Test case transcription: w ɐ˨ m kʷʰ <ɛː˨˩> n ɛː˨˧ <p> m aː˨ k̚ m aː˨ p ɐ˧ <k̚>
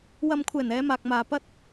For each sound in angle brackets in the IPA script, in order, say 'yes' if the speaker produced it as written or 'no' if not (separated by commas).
yes, no, no